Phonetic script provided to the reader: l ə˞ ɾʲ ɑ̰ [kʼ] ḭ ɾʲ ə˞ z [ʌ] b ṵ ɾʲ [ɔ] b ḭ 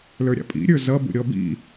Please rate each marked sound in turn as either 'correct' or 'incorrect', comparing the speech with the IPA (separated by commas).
incorrect, correct, correct